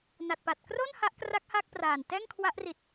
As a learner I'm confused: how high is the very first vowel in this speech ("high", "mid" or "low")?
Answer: low